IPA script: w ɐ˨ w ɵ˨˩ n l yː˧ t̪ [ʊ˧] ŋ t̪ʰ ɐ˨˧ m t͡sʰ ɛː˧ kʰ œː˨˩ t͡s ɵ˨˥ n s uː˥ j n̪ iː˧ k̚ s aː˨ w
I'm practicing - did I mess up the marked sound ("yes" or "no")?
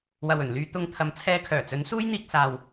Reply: no